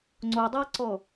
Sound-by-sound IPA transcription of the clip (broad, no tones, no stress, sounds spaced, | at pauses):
ŋ͡ǀ o dˤ a ǀ ɔ